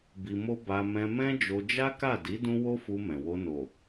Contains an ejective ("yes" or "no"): no